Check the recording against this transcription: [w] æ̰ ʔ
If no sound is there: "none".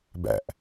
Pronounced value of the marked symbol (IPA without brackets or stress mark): b